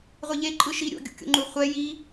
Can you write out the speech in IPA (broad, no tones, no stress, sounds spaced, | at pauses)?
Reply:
ʁʷ e ʎ e ǃʼ ɯ ʃ i ɾʲ o̰ ɡʲ ṵ kʲ o̰ ŋ͡ǃ u χʷ ɛ j i